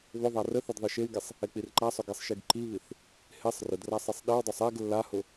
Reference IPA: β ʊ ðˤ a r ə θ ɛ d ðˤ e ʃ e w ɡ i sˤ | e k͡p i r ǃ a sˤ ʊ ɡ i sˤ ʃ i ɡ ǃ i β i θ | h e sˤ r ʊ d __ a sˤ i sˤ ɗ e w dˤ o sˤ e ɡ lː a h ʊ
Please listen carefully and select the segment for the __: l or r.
r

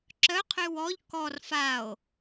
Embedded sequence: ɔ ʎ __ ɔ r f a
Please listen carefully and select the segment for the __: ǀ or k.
k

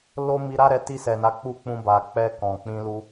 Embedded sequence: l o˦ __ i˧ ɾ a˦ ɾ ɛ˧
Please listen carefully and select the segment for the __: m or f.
m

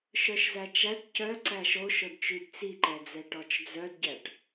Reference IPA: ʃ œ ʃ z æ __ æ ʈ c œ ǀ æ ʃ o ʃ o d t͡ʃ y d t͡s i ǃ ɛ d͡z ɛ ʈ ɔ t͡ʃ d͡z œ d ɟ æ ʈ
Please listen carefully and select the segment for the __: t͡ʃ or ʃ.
t͡ʃ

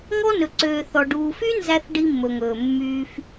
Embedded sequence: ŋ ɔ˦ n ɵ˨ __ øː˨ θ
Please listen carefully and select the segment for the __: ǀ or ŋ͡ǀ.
ǀ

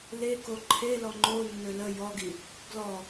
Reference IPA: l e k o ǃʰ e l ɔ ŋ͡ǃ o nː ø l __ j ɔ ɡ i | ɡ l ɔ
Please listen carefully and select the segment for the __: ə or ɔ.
ə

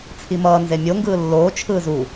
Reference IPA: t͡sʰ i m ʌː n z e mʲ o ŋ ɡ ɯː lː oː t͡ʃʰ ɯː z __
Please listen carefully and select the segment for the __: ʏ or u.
u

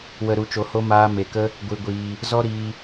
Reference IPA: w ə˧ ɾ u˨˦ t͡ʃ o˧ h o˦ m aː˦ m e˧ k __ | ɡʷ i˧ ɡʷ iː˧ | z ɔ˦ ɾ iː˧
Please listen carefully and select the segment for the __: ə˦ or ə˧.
ə˦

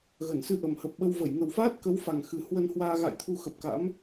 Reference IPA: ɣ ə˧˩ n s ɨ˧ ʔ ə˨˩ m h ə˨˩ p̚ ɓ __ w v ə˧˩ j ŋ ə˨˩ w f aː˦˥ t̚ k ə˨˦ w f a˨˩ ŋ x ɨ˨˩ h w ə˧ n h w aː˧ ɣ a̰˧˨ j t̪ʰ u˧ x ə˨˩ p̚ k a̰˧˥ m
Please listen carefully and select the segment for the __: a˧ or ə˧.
ə˧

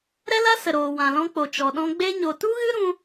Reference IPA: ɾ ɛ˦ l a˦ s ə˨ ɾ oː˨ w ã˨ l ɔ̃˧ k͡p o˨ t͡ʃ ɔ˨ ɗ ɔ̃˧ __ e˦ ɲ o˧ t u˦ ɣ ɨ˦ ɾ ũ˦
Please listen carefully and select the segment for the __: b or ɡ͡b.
ɡ͡b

